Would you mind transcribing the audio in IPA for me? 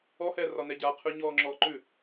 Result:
ɔ h ɛː r ɒ n ɛ ɟ a qʰ ʉ ɲ ɔː ŋ͡ǁ ɔː ǃ ʉ

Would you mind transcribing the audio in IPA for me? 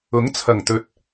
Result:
ʊ˨˥ ŋ t͡sʰ ɐ˨˩ ŋ t̪ ɵ˨ t̚

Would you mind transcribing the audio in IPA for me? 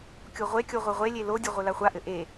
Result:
kʲ o ʁʷ e kʲ o ʁʷ ɘ ʁʷ e lʲ e l o dʲ ɘ ʁʷ ɘ l a χʷ a ʔ ɘ ʔ e

